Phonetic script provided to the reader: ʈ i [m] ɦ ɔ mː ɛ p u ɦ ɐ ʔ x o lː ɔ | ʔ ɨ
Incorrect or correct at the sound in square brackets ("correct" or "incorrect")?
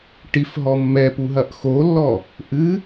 incorrect